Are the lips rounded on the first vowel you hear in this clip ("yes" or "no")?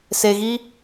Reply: no